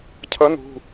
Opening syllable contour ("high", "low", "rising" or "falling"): rising